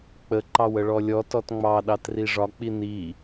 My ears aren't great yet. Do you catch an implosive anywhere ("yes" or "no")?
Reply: yes